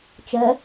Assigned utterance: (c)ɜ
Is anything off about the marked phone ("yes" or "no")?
yes